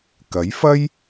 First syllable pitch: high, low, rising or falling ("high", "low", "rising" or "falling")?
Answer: rising